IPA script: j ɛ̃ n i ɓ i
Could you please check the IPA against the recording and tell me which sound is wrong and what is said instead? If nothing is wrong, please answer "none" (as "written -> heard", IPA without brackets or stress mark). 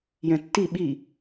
n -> tː